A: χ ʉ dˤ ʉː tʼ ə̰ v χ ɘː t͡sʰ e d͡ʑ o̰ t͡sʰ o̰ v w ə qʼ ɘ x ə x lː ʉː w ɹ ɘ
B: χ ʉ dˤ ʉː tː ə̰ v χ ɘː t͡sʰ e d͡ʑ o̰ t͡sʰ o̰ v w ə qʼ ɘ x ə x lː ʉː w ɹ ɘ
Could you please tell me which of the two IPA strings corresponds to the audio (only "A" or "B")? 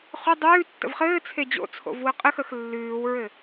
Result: B